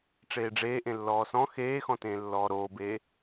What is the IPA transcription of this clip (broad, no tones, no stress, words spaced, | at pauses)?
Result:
ʈ͡ʂeːɖ͡ʐeːʔẽ lːɔːsɔ̃ xeːxɔ̃tẽː lːɔːɾoːbeː